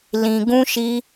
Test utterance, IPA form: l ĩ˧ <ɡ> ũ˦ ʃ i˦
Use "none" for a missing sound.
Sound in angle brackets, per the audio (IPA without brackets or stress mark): ɡ